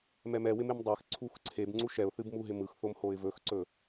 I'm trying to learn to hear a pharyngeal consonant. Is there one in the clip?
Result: no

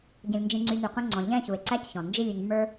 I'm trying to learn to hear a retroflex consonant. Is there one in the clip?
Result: no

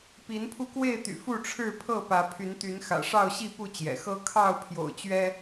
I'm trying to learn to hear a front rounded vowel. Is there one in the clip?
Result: yes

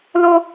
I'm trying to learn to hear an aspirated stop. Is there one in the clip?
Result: no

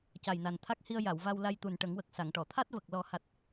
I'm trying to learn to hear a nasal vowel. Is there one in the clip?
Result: no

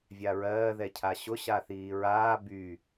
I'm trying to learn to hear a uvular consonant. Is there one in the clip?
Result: no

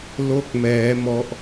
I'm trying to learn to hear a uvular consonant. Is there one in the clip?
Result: no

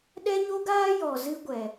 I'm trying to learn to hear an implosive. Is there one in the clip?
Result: yes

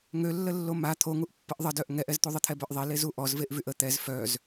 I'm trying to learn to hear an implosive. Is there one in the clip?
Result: no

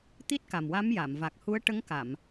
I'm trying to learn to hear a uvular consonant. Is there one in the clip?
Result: no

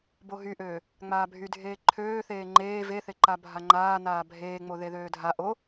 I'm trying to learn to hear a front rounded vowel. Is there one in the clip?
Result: yes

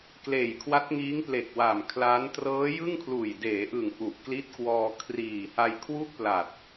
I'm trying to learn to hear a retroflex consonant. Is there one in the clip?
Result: no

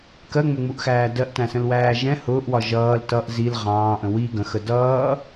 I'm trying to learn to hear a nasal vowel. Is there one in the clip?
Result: yes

